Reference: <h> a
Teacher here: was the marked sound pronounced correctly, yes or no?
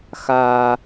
no